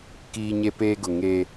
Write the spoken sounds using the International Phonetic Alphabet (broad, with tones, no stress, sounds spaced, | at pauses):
k iː˦ ɲ e˦ p eː˦ ɡ ʊ˨ ŋ eː˦